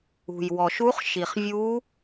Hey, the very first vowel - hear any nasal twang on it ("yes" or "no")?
no